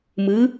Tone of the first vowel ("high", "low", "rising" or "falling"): rising